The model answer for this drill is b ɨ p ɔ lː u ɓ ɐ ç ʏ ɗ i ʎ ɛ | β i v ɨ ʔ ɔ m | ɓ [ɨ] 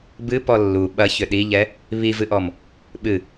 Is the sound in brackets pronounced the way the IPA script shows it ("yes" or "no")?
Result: yes